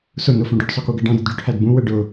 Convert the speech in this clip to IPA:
s ʊ n ʊ f ũ ɖ ʊ ɖ sˤ ʊ k u ɡ ə ɖ ɑ̃ d ə d ɖ u ʈʰ æ d b ũ w ə ɖ ʊ

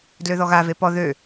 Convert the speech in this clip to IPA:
d l ø ð ɔ ɣ a v e p ɔ ð ø

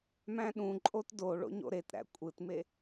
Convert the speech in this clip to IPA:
m æ̃ ɗ ũ ǃʼ o t d o ɭ o̰ ɲ o̰ ɾ e t ɾ æ̰ kʷʼ ɯ t m e

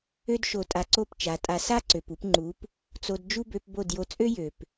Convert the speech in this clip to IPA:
ø˦ d ʃ o˧ tʼ a˧ ǀ o˦˨ p t͡ʃ a˨˦ tʼ a˧ s a˦ ǀ ø˨ p u˧ p ŋ͡ǃ u˨˦ p | t͡s o˧ d d͡ʒ u˦ b ø˧ p b o˦˨ d j o˧ t͡sʼ ø˦ j ø˨ p

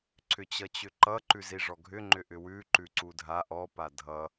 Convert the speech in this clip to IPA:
ǀʰ ʏ t͡ɕ ʌ t͡ɕ ʏ ǃ ʌ ǃ ʉ z i ʐ ɔ ɡʱ ʏ ŋ͡ǃ ʏ ʔ ʏ w ʉ ǃ ʉ ǀ u dʱ a ʔ ɔ p a dʱ ʌ

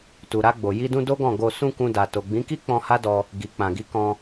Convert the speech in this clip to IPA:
t u˨ ɾ a˧ ɡ͡b o˨ j i˧ d ũ˧ d o˦ ɡ ɔ̃˦˨ ɡ o˧ s ũ˧ k ũ˧ d a˨ t o˨ ɡ͡b ĩ˨˦ k i˦ k͡p ɔ̃˧ h a˦ d ɔ˧ | ɡ i˨ k͡p ã˨ ɡ i˨˦ k ɔ̃˧

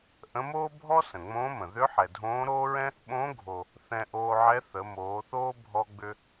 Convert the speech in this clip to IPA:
ʔ ə̃˧˥ m oː˥ bʱ ɔ˥ s ə̃˩ ŋ͡m õː˧˥ m ə̃˩ ð ʏ˧˥ ħ ɛ˩ dʱ õː˧˥ ɾ oː˥ ɹ ɛ̃˥ | ɓ õ˧˥ ɡʱ o˩ | θ ɛ̃˧ ʔ oː˧ ʕ ɛ˧˥ θ ə˩˧ m oː˩˧ θ oː˥ bʱ ɔ˧ ɡ͡b ʏ˧

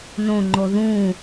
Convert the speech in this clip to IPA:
n õ ŋ͡ǃ o ð ũ

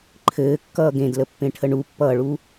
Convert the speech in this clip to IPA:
ǃʰ ɘː kː ʌː ɡ ẽ d l ə pː ẽ ʈʰ ə ɳ u pː ʌː ɭ u

